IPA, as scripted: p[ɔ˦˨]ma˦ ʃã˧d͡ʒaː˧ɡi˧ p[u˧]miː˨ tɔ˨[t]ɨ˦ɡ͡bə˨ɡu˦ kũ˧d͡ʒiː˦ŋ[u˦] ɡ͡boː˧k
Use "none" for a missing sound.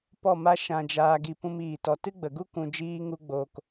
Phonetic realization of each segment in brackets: ɔ˦˨, ũ˧, t, u˦

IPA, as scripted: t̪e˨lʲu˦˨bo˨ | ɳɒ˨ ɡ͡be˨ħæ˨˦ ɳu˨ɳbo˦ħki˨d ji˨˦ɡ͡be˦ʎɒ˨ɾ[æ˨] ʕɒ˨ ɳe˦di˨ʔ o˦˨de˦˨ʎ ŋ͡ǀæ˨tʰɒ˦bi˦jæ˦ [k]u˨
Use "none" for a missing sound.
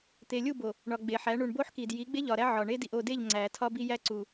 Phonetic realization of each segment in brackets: æ˦, ǀ

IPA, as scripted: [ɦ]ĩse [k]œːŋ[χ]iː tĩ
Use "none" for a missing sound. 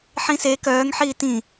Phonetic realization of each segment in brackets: ħ, k, ħ

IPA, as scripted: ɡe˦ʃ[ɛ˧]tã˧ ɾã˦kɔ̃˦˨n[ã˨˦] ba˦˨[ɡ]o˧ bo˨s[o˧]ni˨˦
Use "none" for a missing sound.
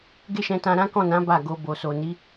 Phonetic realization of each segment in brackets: ɛ̃˧, ã˨˦, ɡ, o˨

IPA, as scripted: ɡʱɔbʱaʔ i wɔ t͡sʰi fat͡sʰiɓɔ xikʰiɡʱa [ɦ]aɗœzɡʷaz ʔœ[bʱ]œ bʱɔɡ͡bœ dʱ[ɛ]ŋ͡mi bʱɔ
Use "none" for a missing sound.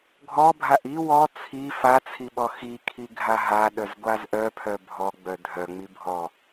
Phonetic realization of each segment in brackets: ɦ, pʰ, œ

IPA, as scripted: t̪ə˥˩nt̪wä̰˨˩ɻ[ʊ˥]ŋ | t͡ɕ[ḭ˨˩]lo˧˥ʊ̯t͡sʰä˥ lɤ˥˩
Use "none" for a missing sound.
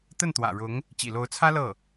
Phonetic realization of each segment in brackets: ʊ˧˥, ḭ˨˩

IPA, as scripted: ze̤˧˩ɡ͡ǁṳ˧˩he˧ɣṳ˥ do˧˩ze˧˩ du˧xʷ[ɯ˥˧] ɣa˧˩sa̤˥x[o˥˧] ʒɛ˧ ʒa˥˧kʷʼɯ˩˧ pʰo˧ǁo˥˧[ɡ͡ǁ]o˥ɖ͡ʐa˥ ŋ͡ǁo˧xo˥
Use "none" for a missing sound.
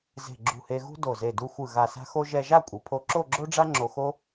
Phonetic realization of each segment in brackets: ɯ˧˩, o˥, ɡ͡ǁ

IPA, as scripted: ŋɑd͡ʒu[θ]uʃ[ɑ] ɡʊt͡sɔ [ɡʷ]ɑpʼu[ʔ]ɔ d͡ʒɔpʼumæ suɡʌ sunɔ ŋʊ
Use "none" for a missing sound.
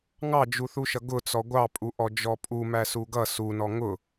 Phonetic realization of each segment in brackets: θ, ʌ, ɡʷ, ʔ

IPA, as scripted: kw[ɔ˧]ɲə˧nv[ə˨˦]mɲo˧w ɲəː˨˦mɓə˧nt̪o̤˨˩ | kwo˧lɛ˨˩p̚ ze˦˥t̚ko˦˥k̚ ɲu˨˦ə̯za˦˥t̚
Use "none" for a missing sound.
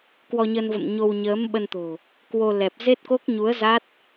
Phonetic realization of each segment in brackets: ɔ˧, ə̰˧˨

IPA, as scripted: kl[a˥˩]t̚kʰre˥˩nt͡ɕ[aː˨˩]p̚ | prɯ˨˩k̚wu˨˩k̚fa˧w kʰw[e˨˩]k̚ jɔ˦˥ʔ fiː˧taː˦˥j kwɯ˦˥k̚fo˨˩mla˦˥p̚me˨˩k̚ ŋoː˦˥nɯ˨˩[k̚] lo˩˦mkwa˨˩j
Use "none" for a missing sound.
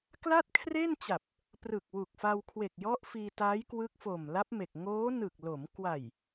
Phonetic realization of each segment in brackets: a˥˩, a˨˩, e˨˩, k̚

